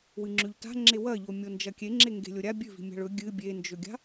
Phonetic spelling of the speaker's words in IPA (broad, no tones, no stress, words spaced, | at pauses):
wɨŋ͡ǁʉʎta̤ ŋ͡ǁewɐʎo mʲond͡ʒɐkʲeŋ͡ǁe ŋɡe̤lʲoɾʲa bʲʉvi̤mʲa̤ɭ ɵ ɡʲɨ bʲend͡ʒɵɡʲa̤